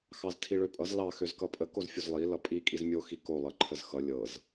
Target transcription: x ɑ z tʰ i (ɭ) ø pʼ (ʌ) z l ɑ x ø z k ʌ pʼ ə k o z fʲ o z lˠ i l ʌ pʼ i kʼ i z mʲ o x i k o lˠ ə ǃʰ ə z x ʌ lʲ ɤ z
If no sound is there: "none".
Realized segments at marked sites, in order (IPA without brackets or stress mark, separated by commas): ɭ, ʌ